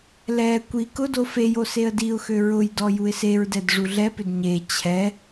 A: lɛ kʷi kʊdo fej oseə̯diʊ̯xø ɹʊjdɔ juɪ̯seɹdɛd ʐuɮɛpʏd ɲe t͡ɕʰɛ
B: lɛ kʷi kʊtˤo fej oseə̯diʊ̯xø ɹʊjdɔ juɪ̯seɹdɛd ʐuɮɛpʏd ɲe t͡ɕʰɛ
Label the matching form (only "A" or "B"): A